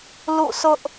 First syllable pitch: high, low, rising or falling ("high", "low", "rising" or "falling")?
falling